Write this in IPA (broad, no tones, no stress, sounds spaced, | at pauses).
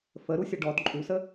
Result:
f ə ɾ u sʲ ə ɖ ɔ d ǃʼ u s ə